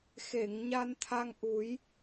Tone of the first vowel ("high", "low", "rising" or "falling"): low